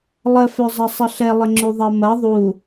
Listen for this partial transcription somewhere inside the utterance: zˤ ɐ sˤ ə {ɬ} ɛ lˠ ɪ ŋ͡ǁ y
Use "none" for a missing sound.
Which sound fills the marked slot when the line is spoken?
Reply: ɬ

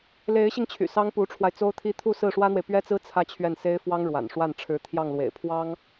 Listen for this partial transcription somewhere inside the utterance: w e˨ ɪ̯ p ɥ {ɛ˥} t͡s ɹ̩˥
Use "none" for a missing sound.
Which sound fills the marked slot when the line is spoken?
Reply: ɛ˥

